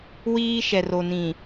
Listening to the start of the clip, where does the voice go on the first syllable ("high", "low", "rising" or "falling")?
high